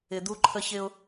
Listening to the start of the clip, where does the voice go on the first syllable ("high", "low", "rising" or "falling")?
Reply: low